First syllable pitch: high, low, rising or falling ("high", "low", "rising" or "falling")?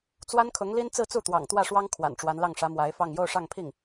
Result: high